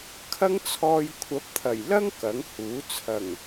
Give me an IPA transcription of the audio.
kʰɐ˥ŋt͡sʰɔː˧j kʷʰɐ˨˥p̚t̪ʰɐ˨˩jlɐ˥ŋ kɐ˨˥ŋhuː˨˥ t͡sʰɐ˨˩ŋ

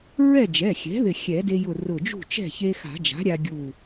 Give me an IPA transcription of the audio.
ɹɛ˥˨d͡ʒɛ˩˧˩xʲɛ̤˩˥ ðɪ˧˩xʲɛ˨˩˦de˧jʊ˧˩ rʊ˧˩d͡ʒṳ˥˨t͡ʃɛ̤˥˨ çe˧xa̤˨˩˦d͡ʒa̤˩˥ ɾʲa˧ɡʲu˧˩

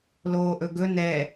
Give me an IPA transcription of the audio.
loːʔɵɡɵ nɛ

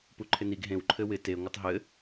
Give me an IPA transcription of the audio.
puǃʰɪniɡ ɦẽw ǃʰɘwɪ te ŋʷɪtˤɦɘ

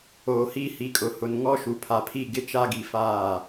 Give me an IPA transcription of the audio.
oː˨hiː˦ hi˨kʼʊ˨ hʊ˨nŋɔ˦ ʃu˨pʰa˨pʰi˦˨ ɡɪ˦t͡ʃa˦ɡi˨ faː˦˨

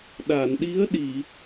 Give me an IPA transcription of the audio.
ɗa˨˩˨nɗi˧˥ə̯ɗi˨˩˨

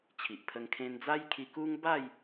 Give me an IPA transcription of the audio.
t͡ɕʰi˨ʔpʰə˧ŋ kʰẽ˧nd͡za˦jkʰi˧ ku˦ŋ ba˥˧j

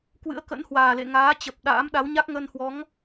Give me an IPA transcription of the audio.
kwɨ̰˧˥ə̯kə̰˧˥nhwaː˨˩lḛ˧˨ ŋaː˨˦ t͡ɕə˨˩p̚ ɗa̰ː˧˥mɗa˨˦wɲa˦˥k̚ ŋə˧nhwɔ˨˦ŋ

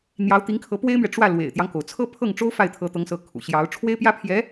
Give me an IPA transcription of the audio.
n̪jɑ˧˥ʊ̯ t̪i˧˥ŋkʰɤ˧˥ pwe˥ɪ̯mɥɛ˨ ʈ͡ʂwä˥˩ lwḛ˨˩ɪ̯t̪jɑ˦ŋko˩ʊ̯ t͡sʰɤ˥pʰɤ˥˩ŋ ʈ͡ʂo˥ʊ̯ fa˥˩ɪ̯ t̪ʰɤ˧˥t̪ɤ˧˥ŋsɤ˧˥ kʰṵ˨˩ɕjɑ˧˥ʊ̯ ʈ͡ʂʰwe˥ɪ̯pjä˥pʰjɛ˧˥

